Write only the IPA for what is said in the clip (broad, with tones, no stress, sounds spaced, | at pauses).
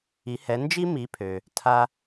i˩˥ h ɛ˩˥ n d͡ʒ i˥ m i˩˥ pʰ ø˩ | tʰ a˥